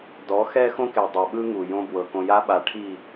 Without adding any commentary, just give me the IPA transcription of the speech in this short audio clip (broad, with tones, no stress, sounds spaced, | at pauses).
d ɔ˨˦ x ɛ˦ x õ˦ k e˨ dˤ o˨ ɓ ɯ˦ ŋ u˨ j õ˦ b w ɤ˨ k õ˨ j a˦ ɓ a˨ ʈʰ i˦˨